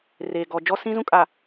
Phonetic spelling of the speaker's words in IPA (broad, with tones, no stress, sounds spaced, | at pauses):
r eː˨ ɡ ɔ˨ d͡ʒ ɔ˦ s ĩ˦ z ũ˦ kʼ a˨